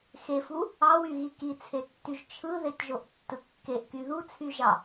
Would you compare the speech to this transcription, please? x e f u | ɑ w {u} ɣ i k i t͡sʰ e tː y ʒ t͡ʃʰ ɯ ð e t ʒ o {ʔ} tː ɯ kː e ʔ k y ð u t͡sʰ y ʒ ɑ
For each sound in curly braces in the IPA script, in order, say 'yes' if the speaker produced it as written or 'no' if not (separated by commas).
no, yes